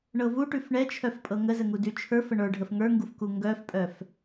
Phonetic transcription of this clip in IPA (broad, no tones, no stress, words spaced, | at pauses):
ɳɤvuʈʉf ɳɛt͡ʃʰœf pʼɤŋəzə ŋudʉt͡ʃʰə˞fə ɳə˞ɖʱəf ŋə˞ŋɡuf kuŋɡœfpʼœf